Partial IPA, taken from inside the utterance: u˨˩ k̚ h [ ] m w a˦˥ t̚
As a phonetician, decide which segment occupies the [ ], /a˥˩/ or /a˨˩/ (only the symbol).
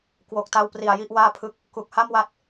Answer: a˥˩